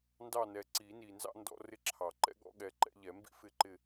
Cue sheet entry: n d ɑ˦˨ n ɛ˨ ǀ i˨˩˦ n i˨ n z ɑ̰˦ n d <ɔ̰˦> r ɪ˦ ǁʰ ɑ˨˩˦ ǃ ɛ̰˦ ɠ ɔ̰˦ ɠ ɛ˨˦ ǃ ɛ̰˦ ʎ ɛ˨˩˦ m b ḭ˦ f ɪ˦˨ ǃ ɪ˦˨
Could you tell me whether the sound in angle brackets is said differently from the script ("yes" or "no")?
no